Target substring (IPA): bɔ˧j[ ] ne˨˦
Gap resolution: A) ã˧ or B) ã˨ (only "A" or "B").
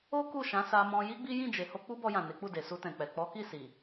B